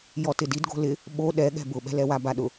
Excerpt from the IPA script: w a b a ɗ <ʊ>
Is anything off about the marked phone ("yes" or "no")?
no